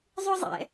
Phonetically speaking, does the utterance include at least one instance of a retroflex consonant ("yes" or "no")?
no